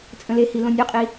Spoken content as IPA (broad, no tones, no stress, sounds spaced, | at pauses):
t͡sʼ ə̃ l e h i l õ nʲ ø qʼ i